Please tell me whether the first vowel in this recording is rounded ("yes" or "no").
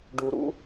yes